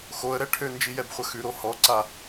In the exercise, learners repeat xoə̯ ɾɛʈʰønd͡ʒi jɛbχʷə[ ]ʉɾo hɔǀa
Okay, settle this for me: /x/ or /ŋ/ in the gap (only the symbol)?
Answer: x